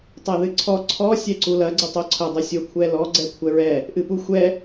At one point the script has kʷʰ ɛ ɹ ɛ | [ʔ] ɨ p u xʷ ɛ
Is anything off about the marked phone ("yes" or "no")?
no